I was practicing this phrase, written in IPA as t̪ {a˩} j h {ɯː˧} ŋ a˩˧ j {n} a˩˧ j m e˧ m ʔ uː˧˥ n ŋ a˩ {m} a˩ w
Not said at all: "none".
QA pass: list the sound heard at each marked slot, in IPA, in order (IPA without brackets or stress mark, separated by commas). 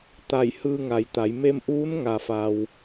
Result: a˧˩, ɯː˧, t̪, f